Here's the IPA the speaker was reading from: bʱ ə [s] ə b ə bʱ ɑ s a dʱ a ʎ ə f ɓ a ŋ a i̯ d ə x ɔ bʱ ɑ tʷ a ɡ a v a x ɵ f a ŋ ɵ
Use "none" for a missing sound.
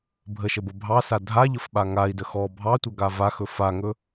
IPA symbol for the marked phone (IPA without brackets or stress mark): ʃ